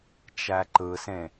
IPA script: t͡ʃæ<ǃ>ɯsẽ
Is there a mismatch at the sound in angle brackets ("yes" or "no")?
no